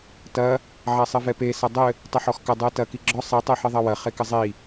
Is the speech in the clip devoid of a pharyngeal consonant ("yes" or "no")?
no